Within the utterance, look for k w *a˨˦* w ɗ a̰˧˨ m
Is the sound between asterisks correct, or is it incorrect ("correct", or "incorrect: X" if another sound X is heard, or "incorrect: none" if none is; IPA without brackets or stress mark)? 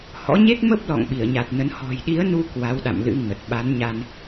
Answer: correct